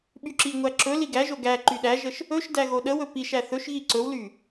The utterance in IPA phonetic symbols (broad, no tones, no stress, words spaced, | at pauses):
ɓyǁiŋʷæ ǁɵ liɡæʒo ɡæ ǃyɗæʒəʃ | ɵʃdæ ɣoɗəwɵ piʃæ θɵʃɣi ǀɵwly